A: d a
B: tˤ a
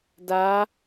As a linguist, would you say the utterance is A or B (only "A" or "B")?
A